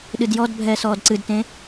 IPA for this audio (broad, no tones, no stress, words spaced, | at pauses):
ɗɨdjɔdbʱɛːs ɔːdǀɨdtẽ